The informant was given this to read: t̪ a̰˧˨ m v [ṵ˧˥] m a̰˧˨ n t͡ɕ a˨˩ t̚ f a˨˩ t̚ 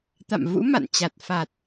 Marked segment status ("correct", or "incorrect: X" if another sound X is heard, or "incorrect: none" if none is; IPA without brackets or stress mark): correct